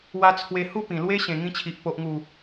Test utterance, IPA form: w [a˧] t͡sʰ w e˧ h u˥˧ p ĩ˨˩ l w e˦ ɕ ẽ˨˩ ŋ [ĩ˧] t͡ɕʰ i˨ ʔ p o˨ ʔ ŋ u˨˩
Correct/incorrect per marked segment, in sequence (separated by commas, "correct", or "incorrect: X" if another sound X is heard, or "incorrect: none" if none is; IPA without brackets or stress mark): correct, correct